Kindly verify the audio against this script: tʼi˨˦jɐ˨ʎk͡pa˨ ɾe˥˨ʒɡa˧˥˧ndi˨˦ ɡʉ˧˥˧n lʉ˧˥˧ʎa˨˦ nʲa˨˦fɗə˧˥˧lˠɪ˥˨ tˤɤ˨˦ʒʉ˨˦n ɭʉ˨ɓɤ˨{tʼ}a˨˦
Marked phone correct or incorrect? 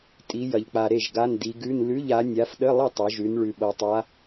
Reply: incorrect